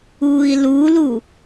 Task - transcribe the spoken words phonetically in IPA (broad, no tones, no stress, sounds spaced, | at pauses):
uː i̯ l u l u